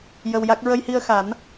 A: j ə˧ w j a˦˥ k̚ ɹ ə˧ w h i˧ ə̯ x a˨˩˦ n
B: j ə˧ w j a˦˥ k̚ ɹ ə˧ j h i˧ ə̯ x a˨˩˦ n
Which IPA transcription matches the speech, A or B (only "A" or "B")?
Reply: B